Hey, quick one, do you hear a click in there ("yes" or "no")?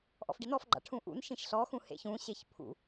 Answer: yes